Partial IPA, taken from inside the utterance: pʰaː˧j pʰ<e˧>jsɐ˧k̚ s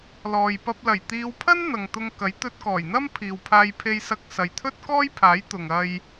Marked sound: correct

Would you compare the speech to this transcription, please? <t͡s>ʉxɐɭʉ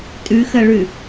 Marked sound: incorrect: tʼ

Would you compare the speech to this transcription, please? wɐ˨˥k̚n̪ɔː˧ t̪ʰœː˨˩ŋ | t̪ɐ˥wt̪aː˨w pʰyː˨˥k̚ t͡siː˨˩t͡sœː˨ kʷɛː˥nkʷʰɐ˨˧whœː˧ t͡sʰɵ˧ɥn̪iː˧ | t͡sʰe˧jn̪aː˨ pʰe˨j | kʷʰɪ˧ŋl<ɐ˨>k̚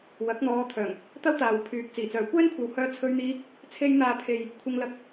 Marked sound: incorrect: ɐ˧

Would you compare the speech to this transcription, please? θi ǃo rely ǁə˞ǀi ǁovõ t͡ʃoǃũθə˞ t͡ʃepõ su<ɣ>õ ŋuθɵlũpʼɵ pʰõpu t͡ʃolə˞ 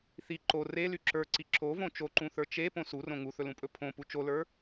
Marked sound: incorrect: r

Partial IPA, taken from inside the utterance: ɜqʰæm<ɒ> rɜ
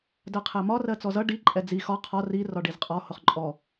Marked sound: correct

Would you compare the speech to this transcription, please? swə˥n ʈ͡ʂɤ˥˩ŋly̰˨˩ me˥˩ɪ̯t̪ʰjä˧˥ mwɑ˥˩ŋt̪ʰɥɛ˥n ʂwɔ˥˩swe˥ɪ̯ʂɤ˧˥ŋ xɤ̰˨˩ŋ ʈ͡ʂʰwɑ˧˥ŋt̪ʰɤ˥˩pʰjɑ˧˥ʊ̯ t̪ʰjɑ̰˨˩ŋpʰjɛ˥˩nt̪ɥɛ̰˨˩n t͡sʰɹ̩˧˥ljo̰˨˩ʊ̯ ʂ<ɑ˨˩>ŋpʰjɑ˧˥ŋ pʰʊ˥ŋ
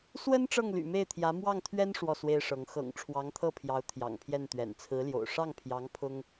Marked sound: incorrect: ɑ˥˩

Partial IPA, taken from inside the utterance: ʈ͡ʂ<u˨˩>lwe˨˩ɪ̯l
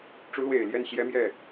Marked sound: incorrect: u˧˥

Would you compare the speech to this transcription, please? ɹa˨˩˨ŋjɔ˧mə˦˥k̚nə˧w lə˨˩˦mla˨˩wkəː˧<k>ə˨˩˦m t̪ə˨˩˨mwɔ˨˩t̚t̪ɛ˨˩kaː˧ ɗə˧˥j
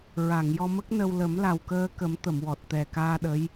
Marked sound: correct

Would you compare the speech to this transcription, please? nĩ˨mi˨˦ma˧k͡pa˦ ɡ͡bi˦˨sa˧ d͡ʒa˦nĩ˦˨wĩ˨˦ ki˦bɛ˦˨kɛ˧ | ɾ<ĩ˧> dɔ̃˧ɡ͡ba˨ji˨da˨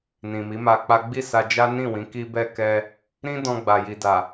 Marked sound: incorrect: ĩ˦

